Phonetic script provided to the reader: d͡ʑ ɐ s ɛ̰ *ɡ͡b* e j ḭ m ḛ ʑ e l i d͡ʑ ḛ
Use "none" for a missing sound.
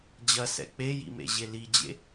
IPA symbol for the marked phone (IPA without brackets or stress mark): k͡p